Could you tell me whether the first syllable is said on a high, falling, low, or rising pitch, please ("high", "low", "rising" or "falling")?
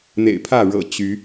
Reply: low